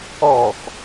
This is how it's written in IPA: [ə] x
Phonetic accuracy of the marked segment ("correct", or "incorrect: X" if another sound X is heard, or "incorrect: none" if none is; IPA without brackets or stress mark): incorrect: ɔ